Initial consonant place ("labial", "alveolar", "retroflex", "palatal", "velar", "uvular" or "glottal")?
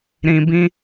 alveolar